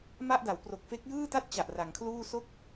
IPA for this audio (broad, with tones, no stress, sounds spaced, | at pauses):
m a˥˩ ʔ d a˩˦ w p r o˨˩ k̚ f e˦˥ k̚ j ɯː˥˩ t a˥˩ t̚ t͡ɕ a˨˩ ʔ r a˩˦ ŋ kʰ l uː˥˩ s o˥˩ k̚